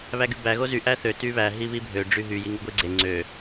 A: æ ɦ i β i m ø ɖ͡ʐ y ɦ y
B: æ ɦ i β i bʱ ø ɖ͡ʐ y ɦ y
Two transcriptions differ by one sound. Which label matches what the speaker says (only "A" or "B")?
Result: B